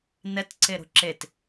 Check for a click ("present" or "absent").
present